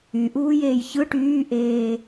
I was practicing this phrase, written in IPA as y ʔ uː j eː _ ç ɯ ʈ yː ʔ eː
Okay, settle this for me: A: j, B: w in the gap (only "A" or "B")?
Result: A